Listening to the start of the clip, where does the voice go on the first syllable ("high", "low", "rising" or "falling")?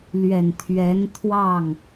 low